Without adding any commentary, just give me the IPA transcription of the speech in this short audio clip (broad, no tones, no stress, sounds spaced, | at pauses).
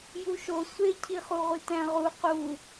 j u ʃ o sʷ e cʰ i χ u ʁʷ i t æ̃ ʁ u q u